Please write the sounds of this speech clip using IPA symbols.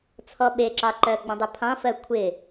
t͡sʰɔɓeǁɑǃɜ ɡ͡bɔ̃dˤɪpʰɑ̃ fɜkʷʰɪ

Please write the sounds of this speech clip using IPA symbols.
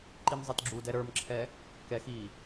ǃimzˤitɡ͡ǁudɛ ɾə˞mǁʰɛ | kɛx i

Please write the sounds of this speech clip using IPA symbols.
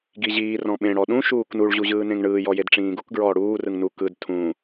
ɡiʑiː rɔ̃ɓẽ ɽɔɗũ ʃuːknuɭ ʑuʑɯːnẽŋɳɯː jɔjedʈ͡ʂĩːɡuk ɡɹɔːɽuː rɯŋnu kɯd tʰũ

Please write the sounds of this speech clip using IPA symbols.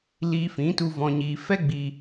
liː˧fĩ˨˦tu˧ vɔ̃˧ɲiː˧ fɛ˦ɡ͡bi˧

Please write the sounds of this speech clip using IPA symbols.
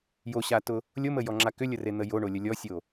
joɕatʊ | lʲoməjɔŋ͡ǁa kʏlʲəren̪ə joɳolʲə lʲɔsʲo

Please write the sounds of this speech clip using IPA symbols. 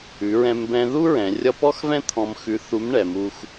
ʉ˩˧ɹɛ̃˧m bɛ̃˧ðu˥ ɹɛ̃˩˧rʲʌ˥ pɔ˥xvɛ̃˥ t̪ʰɔ̃˧m xʉ˧˥θu˧˥m ɳɛ˩˧mu˧x

